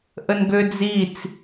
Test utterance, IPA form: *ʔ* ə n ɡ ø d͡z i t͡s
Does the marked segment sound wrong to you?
no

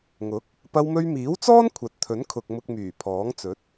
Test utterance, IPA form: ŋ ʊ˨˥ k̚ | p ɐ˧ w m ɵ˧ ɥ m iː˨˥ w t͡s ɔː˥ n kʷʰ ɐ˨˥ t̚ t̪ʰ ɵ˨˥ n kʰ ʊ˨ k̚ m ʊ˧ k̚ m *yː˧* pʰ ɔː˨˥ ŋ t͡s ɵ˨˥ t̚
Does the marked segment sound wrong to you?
yes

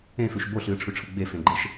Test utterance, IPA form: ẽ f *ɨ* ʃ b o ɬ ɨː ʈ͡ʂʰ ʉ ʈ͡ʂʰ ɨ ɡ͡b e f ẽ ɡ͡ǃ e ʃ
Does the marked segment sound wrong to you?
yes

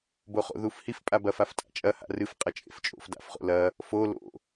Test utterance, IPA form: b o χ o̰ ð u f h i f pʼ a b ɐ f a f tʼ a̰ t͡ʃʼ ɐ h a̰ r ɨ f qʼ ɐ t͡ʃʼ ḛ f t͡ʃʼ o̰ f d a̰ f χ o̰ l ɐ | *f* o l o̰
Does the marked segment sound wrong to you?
no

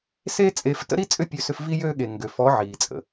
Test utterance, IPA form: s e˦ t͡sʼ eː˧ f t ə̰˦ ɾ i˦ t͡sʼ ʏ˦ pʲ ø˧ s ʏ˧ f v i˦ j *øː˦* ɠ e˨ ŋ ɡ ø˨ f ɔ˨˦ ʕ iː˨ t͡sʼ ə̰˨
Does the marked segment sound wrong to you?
no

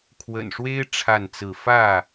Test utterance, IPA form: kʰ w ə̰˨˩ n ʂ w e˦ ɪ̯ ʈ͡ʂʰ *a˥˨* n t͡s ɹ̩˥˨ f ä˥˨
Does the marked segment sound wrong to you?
no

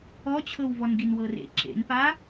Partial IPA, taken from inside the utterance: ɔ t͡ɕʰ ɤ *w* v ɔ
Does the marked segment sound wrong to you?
no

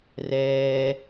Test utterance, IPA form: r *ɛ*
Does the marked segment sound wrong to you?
yes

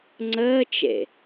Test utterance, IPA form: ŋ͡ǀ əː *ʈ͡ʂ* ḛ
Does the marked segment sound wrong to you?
yes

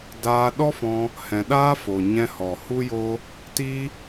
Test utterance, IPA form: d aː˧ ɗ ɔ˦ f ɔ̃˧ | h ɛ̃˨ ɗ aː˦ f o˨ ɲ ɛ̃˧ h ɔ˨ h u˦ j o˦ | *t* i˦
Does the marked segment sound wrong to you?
no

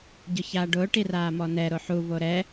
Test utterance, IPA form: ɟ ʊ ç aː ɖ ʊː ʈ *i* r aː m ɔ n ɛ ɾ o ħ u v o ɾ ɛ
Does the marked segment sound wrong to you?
no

